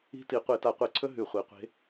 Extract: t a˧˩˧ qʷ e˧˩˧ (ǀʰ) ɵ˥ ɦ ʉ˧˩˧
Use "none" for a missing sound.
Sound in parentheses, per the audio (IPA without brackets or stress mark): ǀʰ